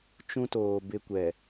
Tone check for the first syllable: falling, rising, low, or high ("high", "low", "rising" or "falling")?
high